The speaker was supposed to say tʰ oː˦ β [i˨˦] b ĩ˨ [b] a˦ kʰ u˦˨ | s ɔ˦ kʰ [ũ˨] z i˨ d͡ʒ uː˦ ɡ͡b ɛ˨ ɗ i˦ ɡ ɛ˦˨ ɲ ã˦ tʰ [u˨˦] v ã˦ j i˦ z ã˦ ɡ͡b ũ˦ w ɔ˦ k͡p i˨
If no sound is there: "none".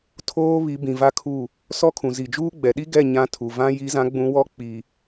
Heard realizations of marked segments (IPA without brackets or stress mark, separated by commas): i˨˦, v, ũ˨, u˨